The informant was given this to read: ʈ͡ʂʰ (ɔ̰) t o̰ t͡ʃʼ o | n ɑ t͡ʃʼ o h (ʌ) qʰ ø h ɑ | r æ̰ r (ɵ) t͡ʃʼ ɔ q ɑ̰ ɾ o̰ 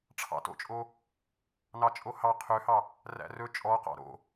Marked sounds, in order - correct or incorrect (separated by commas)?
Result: incorrect, incorrect, correct